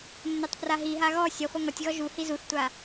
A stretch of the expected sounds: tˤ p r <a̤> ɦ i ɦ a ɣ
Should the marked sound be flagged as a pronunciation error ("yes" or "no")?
yes